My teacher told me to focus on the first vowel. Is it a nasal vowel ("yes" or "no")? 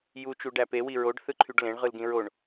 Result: no